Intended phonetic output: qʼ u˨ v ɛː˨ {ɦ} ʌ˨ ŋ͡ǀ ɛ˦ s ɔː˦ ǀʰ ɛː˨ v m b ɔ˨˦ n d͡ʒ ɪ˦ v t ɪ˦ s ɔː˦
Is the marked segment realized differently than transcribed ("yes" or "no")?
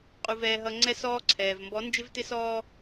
no